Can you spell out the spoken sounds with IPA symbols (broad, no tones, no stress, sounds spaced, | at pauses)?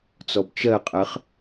t͡s ɔ b t͡ʃ ɜ qʼ ɜ χ